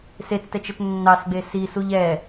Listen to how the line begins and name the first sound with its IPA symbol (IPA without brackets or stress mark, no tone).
s